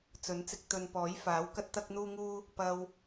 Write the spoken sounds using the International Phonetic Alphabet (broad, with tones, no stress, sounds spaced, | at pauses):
t͡s ɵ˨˥ n t͡s ɪ˧ k̚ t̪ ɵ˨ n p ɔː˨˥ j f aː˨˥ w k ɐ˥ t̚ t̪ ɐ˥ k̚ n̪ uː˥ ŋ uː˥ | p ɐ˧ w